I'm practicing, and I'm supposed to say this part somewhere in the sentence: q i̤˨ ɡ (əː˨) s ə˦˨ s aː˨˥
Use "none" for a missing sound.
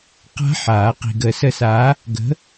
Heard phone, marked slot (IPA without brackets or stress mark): əː˨